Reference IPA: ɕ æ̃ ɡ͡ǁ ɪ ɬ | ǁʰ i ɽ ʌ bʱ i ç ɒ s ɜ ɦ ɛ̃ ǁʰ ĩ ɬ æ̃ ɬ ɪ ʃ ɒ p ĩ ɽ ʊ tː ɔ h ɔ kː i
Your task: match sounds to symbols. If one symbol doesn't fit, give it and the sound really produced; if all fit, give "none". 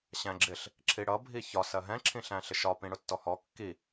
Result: none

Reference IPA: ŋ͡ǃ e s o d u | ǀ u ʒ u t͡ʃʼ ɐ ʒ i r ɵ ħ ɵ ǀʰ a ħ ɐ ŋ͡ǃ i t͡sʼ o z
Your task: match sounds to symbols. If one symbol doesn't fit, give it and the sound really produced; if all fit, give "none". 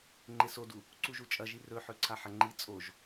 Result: z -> ʒ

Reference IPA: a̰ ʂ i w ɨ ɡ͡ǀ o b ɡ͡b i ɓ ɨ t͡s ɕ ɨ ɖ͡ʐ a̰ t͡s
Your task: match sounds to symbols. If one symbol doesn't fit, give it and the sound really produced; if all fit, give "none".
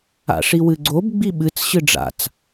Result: none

